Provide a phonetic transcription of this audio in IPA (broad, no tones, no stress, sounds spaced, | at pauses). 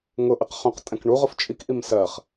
ŋ ʊ ʔ ɪ q χ ũ q tʼ ɛ̃ k ɳ u ʁ ʊ f t͡ʃʼ i k ʔ i m s ɜ χ